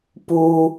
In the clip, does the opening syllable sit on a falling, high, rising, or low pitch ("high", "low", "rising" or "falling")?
high